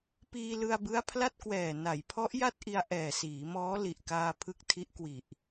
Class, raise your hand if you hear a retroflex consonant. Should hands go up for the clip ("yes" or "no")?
no